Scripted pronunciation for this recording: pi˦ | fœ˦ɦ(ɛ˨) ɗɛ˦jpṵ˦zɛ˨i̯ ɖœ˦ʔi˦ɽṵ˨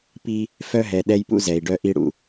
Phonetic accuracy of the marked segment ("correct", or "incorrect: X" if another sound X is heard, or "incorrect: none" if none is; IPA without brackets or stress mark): correct